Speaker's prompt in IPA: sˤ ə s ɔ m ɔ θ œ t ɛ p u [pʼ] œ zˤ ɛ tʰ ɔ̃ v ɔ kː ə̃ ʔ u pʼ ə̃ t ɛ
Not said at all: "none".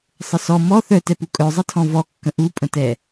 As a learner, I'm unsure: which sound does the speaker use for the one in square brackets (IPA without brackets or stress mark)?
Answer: kʼ